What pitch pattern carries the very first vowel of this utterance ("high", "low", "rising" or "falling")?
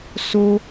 high